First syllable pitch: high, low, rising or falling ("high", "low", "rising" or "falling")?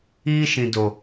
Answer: high